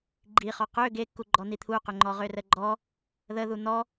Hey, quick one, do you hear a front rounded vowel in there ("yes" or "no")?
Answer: yes